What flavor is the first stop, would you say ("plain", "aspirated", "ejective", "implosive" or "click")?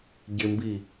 plain